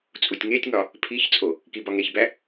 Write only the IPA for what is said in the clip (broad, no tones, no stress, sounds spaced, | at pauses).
t͡sʼ u tʲ ŋ e tʲ ŋ ɒ | pʰ i ç t͡sʼ o | k i b ɒ ŋ e ç b æ